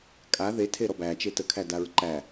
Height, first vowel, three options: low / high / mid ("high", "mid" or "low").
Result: low